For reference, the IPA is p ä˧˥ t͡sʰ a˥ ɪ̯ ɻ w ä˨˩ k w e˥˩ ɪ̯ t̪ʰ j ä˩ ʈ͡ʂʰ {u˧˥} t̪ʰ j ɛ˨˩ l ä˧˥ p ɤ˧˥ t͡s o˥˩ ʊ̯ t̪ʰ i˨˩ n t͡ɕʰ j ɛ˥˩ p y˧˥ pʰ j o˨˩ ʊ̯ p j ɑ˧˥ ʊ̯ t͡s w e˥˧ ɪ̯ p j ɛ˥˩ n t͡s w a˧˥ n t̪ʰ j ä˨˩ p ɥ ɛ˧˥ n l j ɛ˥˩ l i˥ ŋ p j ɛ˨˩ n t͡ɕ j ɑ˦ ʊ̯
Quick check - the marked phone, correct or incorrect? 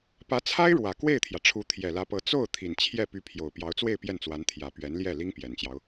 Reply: correct